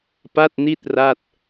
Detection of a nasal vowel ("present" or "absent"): absent